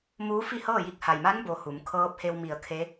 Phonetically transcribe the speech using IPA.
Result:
muː˧˥fi˥˨hɤː˥˨ji˧k̚ ha˩jma˧˥nbo˩ hu˩˧m kʰɤː˧˥p̚he˧w mi˧˩ə̯kʰe˧˥

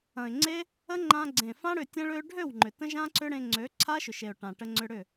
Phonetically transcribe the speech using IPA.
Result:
ɐ̃˨ɪ̯ŋ͡ǀe˦ | ə˦ŋ͡ǃã˧ ɡ͡ǀẽ˨fã˦ ɽʏ˧tʲə̃˦ɭø˦ ɖʱø˦˨w ŋ͡ǃʏ˨tə̃˦ ʒã˦ǀʏ˦ ɽẽ˧ŋ͡ǀø˨˦ ǀʰa˦ʃʏ˨ʃe˨ʊ̯ ʈã˨ʈə˧ ŋ͡ǀʏ˧ɽʏ˦˨

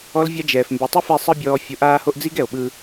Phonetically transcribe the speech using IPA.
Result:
ɔ˦lvʲa˦d͡ʒɛː˨f mbe˨tˤe˦fɛ˧ sˤɯ˦bʲɔː˧ fʲo˧ʔaː˦ho˦ʔ d͡zi˦ɡɛ˨o̯ɓɯ˧

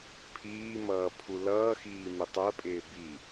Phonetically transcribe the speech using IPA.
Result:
pʰiːmʌː pʰulʌːxiː mɪtˤɜpʼɪː bi

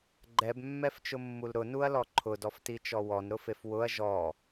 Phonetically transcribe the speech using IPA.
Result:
ɡ͡ǃɛbmːɛft͡ʃʊmːul ɾʊnuɐ̯lɔ ǃʰʊdɔftit͡ʃɔ wɔnɾʊfef wʊɐ̯ ʒɔ

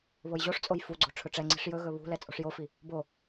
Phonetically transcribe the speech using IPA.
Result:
βojʑoʂt͡sʼoj fuɡ͡ǀo̤ ʈ͡ʂʰɵʈ͡ʂɛŋ͡ǀi̤ʂ jɵɣɵ βṳlɛ t͡sʼo̤ʂjofi | bo

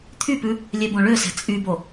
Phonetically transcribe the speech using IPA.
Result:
t̪ʰypʉ | lʲɛbõɭøsɛ̤ t͡sʼybo

